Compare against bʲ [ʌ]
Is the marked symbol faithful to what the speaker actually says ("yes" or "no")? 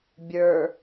no